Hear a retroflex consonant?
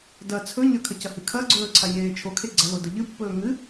no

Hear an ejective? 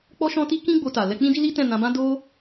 no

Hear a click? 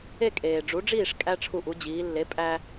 no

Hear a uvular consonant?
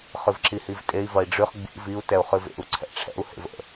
yes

